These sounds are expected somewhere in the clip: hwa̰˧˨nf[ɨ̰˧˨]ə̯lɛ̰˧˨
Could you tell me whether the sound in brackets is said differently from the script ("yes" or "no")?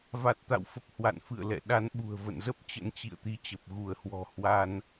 no